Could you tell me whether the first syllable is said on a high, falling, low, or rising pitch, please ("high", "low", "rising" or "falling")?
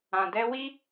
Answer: low